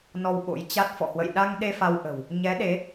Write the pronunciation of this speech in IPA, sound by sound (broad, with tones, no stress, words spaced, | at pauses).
nɔ˧wɓo̰˧˥jt͡ɕa˦˥t̚ fɔ̰˧˨hwə̰˧˨j ɗa˧ŋɗe˧ fa˧wʔə̤˨˩w | ɲɛ˨˦ɗe˨˦